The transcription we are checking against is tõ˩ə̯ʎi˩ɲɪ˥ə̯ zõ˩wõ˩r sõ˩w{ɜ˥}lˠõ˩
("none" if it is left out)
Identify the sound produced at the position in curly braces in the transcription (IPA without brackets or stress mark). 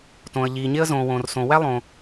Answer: æ˥